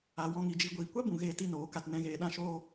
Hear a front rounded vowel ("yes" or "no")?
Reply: no